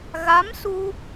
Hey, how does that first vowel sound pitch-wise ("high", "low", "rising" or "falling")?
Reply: rising